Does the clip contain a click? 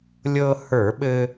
no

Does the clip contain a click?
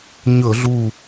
no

